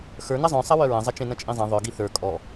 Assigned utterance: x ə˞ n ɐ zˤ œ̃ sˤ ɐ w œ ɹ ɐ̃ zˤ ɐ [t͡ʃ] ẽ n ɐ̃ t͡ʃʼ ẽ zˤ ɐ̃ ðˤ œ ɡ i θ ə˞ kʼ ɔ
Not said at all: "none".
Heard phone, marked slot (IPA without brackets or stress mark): t͡ʃ